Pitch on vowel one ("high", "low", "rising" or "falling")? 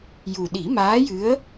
low